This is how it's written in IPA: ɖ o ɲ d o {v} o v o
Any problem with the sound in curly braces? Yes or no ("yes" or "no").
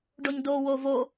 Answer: yes